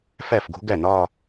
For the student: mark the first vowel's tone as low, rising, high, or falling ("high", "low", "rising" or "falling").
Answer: falling